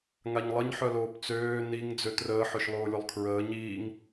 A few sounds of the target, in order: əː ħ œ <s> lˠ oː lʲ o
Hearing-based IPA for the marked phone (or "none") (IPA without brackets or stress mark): ʃ